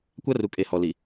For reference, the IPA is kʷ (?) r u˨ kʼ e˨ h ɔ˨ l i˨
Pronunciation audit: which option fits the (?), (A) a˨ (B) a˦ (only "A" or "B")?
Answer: B